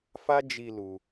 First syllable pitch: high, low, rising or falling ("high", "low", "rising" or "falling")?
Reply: high